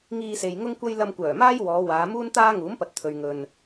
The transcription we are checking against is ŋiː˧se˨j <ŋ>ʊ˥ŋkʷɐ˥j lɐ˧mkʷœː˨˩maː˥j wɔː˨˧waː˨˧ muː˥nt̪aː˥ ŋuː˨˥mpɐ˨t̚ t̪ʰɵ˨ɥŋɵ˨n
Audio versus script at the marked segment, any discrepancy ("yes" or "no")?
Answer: no